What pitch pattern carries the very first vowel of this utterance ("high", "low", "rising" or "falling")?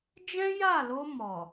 high